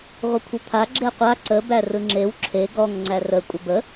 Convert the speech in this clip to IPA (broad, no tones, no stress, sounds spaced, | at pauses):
ʁʷ ə kʷʰ ə t̪ʰ a ɡ͡ǁ e qʷ a ǀ ə b æ r ɯ ŋ͡ǁ e w ǁʰ e ɡ ɔ ŋ ŋ͡ǀ æ r ə kʷʼ ə b ə